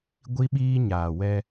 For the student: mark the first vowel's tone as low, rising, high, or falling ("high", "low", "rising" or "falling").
high